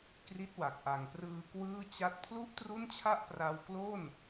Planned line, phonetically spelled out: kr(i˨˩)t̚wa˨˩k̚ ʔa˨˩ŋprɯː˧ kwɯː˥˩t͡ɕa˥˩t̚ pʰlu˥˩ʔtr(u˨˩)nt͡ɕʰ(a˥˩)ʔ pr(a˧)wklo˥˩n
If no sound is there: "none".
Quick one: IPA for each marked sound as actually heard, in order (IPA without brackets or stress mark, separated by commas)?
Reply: i˦˥, u˥˩, a˥˩, a˧